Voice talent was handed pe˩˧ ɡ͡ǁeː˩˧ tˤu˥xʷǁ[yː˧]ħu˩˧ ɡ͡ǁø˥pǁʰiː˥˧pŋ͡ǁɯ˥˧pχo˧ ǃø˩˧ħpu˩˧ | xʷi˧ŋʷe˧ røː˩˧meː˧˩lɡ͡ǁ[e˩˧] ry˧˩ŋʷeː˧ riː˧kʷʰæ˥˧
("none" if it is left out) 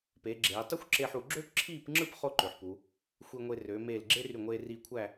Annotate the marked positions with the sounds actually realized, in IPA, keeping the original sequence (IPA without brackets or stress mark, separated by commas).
eː˧, e˥